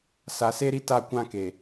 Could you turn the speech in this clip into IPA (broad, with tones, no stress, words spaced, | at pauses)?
sa˨se˦ɾi˦ta˦˨ kʷã˦ke˨